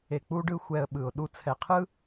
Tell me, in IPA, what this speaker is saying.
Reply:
e˧k͡pu˦ɖɯ˦ xʷɛ˧ə̯ɓɯ˨ʊ̯ ɗu˧t͡sʰɛ˨qʰɯ˦

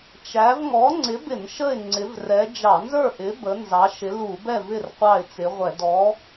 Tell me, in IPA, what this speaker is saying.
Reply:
t͡ʃæ˨˥v ŋɔ˨˥ŋ͡ǀɪ˨˥bɪ˧˩˧n ʃə˥˨ɪ̯ ŋ͡ǀɪ˨˥vrɛ˨˥ d͡ʒɑ˧˩˧nzə˞˥˨ʔɪ˨˥ bə˨˥nzɑ˨˥ʃɪ˨˥ lu˧˩˧bɛ˥˨v ɪ˥˨r qʷɑ˥˨ɪ̯t͡sɪ˨˥ʁʷɛ˧˩˧ dɔ˨˥

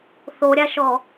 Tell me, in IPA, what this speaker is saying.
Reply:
θoɾʲaʃɔ

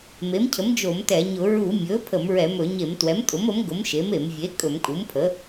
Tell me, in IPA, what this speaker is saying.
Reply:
me˩˥mcʰə˩˥m d͡ʒo˧˩˧m tɛ˧˩˧ɲʊ˧˩˧ ɹu˧˩˧ mʲɵ˩˥ pʰə˧˩˧mɹɛ˧˩˧mɵ˧˩˧ ɲe˧˩˧mtwɛ˩˥mtʼʊ˩˥mə˩˥m ɡʊ˩˥m ʃe˩˥me˧˩˧m vʲe˩˥ kʼɵ˧˩˧mkʼu˩˥mpʰə˩˥

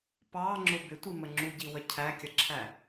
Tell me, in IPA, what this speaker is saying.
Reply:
pɑŋ͡ǁʊ bɪtʷimə ŋ͡ǁuɟiwə cʰækʲʌǁʰæ

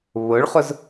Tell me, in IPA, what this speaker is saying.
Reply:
βʊɭχʊz

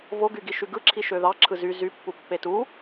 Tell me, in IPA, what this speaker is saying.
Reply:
voɡyɡi ʃyɡɯǁʰi ʃøðɑǁʰɯ zy zypːu pːetu

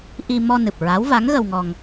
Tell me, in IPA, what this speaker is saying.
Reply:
ʔi˧ mɔ˧nɨ˨˩p̚ ɹa˧˥w va˧˥ŋɣə˧wŋɔ˧ŋ

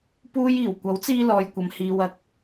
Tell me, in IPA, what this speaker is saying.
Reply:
puː˧jiː˨˩w kʷɐ˨˥wt͡siː˧lɔː˨jkʷɐ˨m hiː˨wɐ˨˥k̚

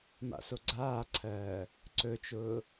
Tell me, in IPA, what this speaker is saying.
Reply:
ma̰soɡ͡ǀaːǀʰɜː | ǀɵt͡ʃʊː

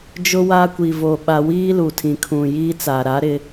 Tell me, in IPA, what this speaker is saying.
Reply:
d͡ʒʊ˦ wa˦ kʷi˨vo˨ ɓa˦ wiː˦lu˨tʰĩ˨kʰũ˨ jiː˦t͡sa˨ɾa˨˦ɾɪ˦

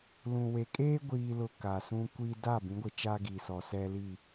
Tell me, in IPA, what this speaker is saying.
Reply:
lũ˨we˨ kʼeː˦ɡʷiː˨lʊ˨ ka˨sũ˦ kʷi˦ da˦˨ bĩ˨˦ɡʷɪ˨t͡ʃa˦ ɡi˨sɔ˨ sɛ˦li˦˨

